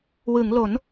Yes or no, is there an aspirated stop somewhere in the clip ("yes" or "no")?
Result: no